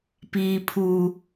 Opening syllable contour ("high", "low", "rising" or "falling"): low